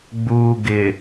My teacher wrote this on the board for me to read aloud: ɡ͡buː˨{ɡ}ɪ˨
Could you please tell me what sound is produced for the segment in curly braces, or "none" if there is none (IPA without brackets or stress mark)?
ɡ